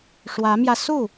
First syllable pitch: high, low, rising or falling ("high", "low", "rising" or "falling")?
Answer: rising